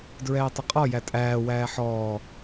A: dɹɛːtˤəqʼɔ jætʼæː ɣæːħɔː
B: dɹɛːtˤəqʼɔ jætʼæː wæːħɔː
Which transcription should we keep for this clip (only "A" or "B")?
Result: B